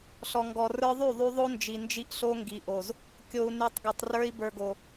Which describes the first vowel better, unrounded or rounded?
rounded